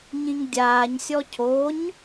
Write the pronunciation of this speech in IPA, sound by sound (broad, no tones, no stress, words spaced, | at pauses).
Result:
ɲĩŋdʲaːɲsʲɔ cʰoɲ